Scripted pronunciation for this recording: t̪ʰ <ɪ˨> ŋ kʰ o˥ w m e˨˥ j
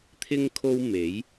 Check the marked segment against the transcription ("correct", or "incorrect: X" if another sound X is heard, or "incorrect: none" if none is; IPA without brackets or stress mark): incorrect: ɪ˥